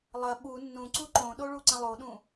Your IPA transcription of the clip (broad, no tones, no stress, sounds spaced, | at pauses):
lˠ ɐ ɓ u nː ũ ǀ u ǃ õ ɗ o ɭ u ǀ ə̃ lˠ o ɗ ũ